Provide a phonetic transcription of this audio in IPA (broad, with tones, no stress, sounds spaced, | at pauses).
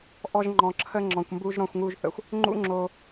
ʔ ɔ˧ ʒ ŋ͡ǃ ɔ̃˨ ǁʰ ə˧ ŋ͡ǁ ɔ̃˨ kʷ m b u˧ ʒ ɾ ɔ̃˧ xʷ ŋ u˧ ʒ θ ə̰˨ xʷ | ŋ͡ǃ ṵ˦ ŋ͡ǁ o˧